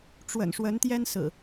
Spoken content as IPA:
ʈ͡ʂwə̰˨˩nʂwə˨˦nt̪jɛ˦n sɹ̩˨˩

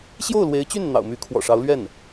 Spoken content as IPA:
ɕjo˥˩ʊ̯lwe˧˥ɪ̯t͡ɕy˥˩n n̪ɑ̰˨˩ʊ̯my˧˥kʰwɔ̰˨˩ʂɑ˧˥ʊ̯ lɥɛ˥˩n

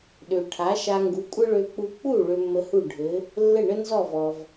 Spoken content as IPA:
ɗø˩ʈʰa˩˥ʃa˧ ŋɡu˩˥kʷʼɘ˥ɭø˧k͡pu˧ k͡pu˥˩ ɭø˧mːə˧hu˥˩ ɖʱɘ˩˥ | lːɘ˥˩ɳə˥nzɔ˥˩vɔ˩v

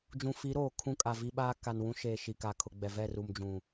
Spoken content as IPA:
d͡ʒũ˨fi˨˦ɾoː˨ kʰũ˦ kʼa˨vi˦ɓaː˦ ka˨nwũ˦ʃeː˨ ʃi˨ka˨kʰʊ˨ɡ͡bɛ˨ vɛ˦˨ ru˨md͡ʒũ˨

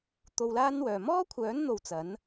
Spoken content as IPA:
t̪o˧wlaː˥nwœː˨ mɔː˥kʷʰœː˨˥n n̪o˧wt͡sɐ˨˥n

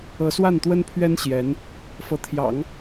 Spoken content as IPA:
ɤ˧˥swa˥˩nt̪wə˥npʰɥɛ˥n ɕjɛ˧˥n | fɤ˧˥t̪ʰjɑ̰˨˩˦ŋ

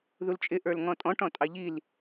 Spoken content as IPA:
ðult͡ʃʼɪ ʔə˞lŋɔ̃tʼɔ̃ʈ ɔ̃tʼɑʎil

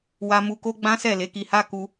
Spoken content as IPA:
wa˧ mu˧ko˦ ɡ͡bã˦sɛ˦˨ le˨˦ki˧ ha˧ ku˦

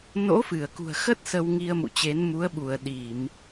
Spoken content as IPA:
no̰˧˥fɨ˧˩ə̯kṳ˨˩ə̯xə˦˥t̚ sə˧wŋi˧ə̯mṵ˧˨t͡ɕe˨˦n mu˨˦ə̯ɓu˧˩ə̯ ɗi˧˩˨m

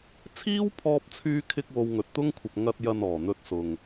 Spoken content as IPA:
t͡sʰiː˥wpʰɔː˧p̚t͡sʰyː˧kʰɪ˧k̚ wo˧wŋɵ˨t̚t̪ʊ˥ŋkʷʰɐ˨p̚ ŋɐ˧t̚jɐ˨n ɔː˨˩n̪ɵ˧t̚sʊ˨ŋ

